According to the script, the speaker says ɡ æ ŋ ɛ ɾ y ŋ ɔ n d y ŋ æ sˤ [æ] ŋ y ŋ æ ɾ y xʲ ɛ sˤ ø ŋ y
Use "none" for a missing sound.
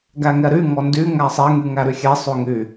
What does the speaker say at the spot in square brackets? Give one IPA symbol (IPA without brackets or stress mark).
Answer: ɛ